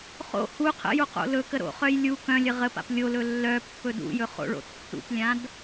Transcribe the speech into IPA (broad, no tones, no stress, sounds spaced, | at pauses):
χ o̰ h u qʰ ə̰ j u q o̰ l ɵ k ə ɾ o̰ χ œ j lʲ u k œ̃ lʲ ə ʁ ə p a̰ p lʲ o l ɵ lː œ pː ɵ d ṵ j ɵ χ o̰ ɭ o̰ tː ṵ p lʲ ã d